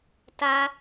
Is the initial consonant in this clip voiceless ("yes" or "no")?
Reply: yes